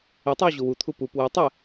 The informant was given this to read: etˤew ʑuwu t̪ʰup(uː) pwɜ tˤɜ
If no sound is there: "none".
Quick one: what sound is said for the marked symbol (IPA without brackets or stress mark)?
u